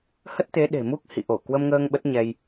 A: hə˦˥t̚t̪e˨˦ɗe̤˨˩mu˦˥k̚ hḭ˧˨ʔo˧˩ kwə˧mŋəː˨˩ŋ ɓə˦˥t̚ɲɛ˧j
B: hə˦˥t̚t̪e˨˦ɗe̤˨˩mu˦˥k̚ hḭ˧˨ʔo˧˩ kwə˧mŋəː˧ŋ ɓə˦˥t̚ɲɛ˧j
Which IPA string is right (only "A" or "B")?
B